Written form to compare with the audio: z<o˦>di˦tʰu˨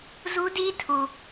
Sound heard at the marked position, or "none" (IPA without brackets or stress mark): u˦